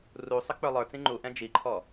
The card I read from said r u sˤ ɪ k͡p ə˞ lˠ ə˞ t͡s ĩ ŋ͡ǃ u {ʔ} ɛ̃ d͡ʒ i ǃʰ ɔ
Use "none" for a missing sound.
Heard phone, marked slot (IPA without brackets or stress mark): ʔ